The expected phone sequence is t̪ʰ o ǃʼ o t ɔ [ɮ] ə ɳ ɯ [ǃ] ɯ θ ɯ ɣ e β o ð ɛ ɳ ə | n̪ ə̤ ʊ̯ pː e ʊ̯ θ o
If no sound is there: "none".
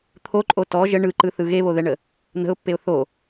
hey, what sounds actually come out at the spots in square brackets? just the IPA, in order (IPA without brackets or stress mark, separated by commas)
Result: ʒ, ǃ